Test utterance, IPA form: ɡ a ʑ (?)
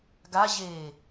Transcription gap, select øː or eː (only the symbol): eː